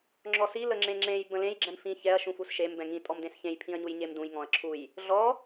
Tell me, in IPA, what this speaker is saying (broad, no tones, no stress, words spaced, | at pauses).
ŋ͡ǁɔsi ləŋ͡ǁẽŋ͡ǁẽj bə̃lẽj ɡ͡ǁɛ̃mfĩ çɛɐ̯ ʃũfusʃem bɛ̃ŋĩ tʼɔmdẽsçẽj pʰĩɐ̯ɲujɲemdũj ŋɔ̃ɐ̯ǁʰuj | ɮɔ